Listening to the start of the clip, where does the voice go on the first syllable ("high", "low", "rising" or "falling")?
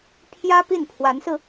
high